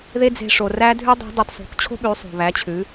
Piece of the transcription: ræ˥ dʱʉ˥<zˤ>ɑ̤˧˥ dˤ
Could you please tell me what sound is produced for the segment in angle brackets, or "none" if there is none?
dˤ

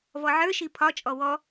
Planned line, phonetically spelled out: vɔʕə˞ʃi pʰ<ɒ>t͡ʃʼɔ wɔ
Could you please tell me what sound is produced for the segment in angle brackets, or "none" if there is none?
ɒ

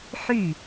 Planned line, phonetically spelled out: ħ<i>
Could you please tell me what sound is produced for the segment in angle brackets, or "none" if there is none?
y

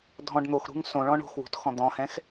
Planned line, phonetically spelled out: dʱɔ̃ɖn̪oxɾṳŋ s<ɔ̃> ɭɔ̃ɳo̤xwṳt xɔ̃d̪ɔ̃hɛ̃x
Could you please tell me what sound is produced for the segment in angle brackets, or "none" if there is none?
õ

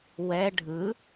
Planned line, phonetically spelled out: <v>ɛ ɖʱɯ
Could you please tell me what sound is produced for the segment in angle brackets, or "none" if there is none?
w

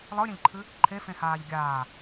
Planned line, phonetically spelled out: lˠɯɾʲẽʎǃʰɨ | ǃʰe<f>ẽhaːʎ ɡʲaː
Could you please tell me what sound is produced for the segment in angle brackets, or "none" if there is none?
f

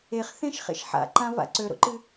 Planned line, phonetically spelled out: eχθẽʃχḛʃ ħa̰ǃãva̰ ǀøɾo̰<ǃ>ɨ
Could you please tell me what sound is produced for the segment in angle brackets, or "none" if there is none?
ǃ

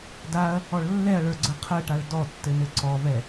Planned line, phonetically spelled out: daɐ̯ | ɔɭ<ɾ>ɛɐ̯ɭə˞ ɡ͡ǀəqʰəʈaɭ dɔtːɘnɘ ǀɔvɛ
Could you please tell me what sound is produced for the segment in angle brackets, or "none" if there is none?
lː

